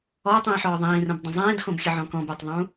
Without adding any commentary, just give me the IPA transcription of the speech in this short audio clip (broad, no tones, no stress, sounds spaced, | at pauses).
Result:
ɔ ɐ̯ tˤ ĩː ħ ɔː ðˤ ĩː r ə̃ b dˤ ə̃ zˤ ĩː d x õ b xʲ ə ʕ ɔ̃ k ɔ̃ b a tˤ ðˤ ũ